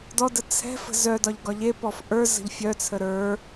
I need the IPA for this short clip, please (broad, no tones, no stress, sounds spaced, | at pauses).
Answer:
d ɔ d ə t͡sʰ ɛ̤ f ə̤ z œ d ɒ ʎ ɡ ɒ ʎ e p ɔ f ʔ ə˞ z ə̤ ʎ fʲ œ t͡sʰ ə ɾ ə˞